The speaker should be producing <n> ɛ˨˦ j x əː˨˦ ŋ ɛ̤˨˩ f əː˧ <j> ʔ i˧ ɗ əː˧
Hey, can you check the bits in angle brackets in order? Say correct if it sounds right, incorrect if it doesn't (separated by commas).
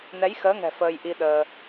correct, correct